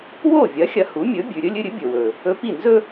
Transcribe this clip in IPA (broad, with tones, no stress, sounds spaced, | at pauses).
w o˥˩ vʲ ɐ˩˥ xʲ ɐ˧ h u˩˥ mʲ ɵ˩˥ bʲ ʉ˩ ɾʲ ɵ˥ lʲ ɨ˧ ɾʲ ɨ˩˥ bʲ ɵ˩ w ɵ˩ | ɵ˧ p i˥˩ n z ɵ˥